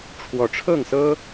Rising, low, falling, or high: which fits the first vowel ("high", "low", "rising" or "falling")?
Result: rising